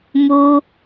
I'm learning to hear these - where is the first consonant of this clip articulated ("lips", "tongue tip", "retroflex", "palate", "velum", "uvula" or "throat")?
lips